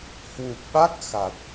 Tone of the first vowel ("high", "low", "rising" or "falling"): low